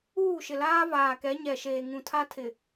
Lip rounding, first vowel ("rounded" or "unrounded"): rounded